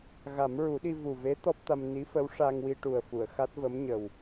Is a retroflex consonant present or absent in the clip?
present